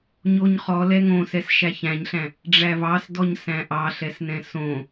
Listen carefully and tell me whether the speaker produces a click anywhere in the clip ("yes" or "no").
no